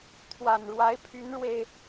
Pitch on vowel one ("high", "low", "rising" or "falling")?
low